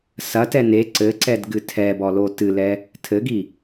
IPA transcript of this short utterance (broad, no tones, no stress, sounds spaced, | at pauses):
s ɐ t ɛ n e ǀ ɘ ǀ ɛ d ɡ ɨ tʰ ɛ b ɔ l o t ɨ l ɛ | tʰ ɘ ɡ i